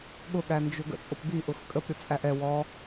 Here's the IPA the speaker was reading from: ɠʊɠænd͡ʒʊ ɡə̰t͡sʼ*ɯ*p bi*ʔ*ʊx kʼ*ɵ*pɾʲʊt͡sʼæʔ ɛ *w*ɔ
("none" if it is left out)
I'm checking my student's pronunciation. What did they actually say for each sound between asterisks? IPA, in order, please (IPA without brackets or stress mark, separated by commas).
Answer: ʊ, ʔ, ə, w